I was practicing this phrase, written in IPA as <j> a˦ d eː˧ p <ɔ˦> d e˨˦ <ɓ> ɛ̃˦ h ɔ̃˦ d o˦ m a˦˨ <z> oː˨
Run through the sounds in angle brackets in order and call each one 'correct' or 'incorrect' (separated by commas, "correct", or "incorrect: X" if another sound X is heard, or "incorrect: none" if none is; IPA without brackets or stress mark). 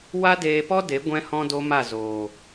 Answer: incorrect: w, correct, incorrect: ɡʷ, correct